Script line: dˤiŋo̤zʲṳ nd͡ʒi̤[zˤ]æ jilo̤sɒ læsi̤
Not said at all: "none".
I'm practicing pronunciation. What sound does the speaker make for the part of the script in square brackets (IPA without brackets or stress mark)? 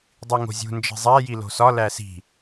zˤ